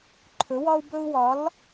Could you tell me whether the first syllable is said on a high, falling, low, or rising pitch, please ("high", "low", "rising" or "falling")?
rising